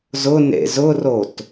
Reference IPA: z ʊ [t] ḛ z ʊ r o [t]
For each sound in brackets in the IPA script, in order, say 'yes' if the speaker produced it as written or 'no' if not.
no, yes

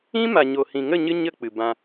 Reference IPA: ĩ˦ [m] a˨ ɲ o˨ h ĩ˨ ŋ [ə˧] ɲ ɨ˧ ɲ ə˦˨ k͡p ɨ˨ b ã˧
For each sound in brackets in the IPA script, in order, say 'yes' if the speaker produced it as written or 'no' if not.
yes, no

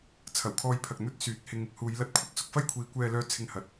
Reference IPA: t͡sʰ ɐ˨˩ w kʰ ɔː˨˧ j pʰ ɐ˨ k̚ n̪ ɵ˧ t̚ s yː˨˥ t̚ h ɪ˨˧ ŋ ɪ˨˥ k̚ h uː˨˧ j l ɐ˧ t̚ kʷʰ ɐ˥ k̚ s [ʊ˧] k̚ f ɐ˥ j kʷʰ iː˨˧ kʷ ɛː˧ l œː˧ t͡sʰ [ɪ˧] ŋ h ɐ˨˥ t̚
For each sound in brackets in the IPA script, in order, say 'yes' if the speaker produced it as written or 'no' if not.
yes, yes

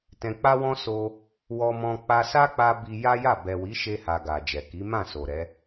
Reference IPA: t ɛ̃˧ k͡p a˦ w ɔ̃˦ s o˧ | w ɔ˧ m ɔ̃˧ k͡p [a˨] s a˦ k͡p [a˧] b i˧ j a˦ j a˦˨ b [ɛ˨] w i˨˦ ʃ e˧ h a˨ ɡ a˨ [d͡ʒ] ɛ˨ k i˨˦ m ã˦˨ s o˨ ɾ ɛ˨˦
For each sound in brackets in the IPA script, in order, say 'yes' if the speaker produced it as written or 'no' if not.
no, yes, yes, yes

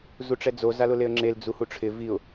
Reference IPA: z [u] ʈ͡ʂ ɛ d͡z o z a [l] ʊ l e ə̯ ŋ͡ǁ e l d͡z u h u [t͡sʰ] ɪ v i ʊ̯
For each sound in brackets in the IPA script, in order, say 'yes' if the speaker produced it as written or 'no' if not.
yes, yes, no

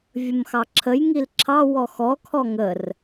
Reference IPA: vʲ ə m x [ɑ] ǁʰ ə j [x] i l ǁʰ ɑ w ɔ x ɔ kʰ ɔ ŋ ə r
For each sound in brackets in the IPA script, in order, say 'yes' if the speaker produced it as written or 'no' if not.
yes, no

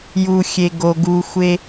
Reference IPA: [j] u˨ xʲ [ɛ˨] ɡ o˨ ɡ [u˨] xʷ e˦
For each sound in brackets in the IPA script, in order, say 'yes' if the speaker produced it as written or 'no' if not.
yes, no, yes

